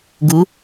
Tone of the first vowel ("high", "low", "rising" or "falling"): rising